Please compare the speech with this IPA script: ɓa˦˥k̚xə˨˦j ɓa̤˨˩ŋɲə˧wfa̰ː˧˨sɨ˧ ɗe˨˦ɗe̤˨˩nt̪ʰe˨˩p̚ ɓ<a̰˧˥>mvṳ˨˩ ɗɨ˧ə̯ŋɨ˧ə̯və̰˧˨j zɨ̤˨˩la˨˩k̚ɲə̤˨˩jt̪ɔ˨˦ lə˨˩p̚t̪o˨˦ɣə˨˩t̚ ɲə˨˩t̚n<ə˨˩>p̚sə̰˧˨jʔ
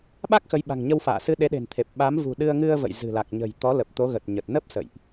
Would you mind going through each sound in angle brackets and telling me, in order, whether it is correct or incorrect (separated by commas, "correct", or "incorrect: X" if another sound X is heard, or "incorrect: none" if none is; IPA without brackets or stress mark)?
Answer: incorrect: a˨˦, incorrect: ə˦˥